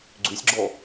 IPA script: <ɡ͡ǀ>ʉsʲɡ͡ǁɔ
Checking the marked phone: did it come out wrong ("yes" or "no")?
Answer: no